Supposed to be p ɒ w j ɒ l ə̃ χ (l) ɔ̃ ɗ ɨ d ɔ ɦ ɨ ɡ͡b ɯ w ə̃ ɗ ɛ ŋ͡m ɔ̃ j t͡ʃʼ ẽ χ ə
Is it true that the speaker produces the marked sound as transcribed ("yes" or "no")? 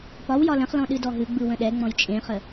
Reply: yes